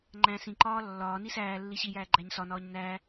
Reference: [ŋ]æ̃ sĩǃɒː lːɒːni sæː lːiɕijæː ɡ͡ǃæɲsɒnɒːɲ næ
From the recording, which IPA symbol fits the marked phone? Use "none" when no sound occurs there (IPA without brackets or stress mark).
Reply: ŋ͡ǃ